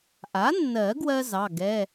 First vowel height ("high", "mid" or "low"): low